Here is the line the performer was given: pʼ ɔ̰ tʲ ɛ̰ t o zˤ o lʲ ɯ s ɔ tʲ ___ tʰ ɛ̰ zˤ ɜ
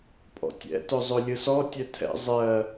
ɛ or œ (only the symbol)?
œ